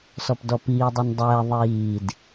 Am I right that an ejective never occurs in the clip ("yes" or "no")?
yes